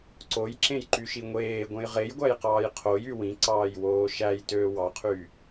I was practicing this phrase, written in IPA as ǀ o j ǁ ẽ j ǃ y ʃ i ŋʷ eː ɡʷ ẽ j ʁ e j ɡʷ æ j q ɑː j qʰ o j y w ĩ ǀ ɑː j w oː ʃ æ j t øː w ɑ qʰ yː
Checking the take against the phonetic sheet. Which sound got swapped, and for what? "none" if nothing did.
none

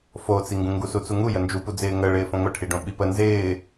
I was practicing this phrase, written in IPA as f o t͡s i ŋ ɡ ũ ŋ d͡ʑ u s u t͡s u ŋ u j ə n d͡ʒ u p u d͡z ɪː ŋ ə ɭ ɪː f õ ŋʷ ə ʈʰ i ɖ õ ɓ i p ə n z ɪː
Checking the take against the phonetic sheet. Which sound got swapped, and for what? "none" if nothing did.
d͡ʑ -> ɡ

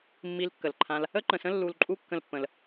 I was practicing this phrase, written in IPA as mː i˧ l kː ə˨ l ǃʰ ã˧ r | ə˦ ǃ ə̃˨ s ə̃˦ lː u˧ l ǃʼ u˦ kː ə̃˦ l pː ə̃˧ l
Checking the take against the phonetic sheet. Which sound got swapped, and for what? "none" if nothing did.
r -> l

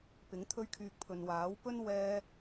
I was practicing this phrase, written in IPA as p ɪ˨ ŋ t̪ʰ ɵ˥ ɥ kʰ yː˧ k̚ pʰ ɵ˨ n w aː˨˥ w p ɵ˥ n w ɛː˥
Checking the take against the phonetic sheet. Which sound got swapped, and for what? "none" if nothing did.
ɪ˨ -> ɪ˨˥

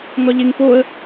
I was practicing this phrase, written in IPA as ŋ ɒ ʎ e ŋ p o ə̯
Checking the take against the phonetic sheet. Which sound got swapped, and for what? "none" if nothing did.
none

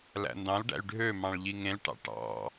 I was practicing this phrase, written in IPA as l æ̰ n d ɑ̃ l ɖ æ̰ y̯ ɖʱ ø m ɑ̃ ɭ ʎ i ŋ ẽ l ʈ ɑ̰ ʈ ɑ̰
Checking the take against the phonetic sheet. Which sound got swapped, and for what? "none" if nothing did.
none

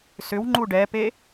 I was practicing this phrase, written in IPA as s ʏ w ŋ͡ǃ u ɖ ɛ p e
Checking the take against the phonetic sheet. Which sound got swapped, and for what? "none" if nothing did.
none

